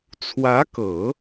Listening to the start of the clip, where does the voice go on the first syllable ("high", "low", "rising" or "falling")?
rising